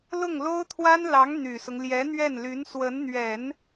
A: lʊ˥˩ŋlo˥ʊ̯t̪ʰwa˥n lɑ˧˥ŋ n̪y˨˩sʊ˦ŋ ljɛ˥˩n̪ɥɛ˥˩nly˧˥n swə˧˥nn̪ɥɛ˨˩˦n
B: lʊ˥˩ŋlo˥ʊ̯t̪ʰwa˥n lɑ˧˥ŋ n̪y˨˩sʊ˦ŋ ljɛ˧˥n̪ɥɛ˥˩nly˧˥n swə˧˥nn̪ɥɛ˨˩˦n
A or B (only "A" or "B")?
B